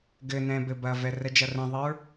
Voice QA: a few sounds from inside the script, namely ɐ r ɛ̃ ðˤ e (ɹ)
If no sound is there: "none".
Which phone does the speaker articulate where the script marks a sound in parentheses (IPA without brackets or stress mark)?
ɹ